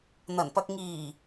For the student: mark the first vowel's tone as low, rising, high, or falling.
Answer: low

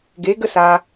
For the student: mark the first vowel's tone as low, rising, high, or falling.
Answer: rising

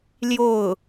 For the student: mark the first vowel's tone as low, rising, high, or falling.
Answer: falling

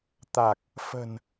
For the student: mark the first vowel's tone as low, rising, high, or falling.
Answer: low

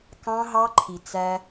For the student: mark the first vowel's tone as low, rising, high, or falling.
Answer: high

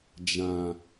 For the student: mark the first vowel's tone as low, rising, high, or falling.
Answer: low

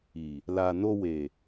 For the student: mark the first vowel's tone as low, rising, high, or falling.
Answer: low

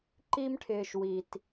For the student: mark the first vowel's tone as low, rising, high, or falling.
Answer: high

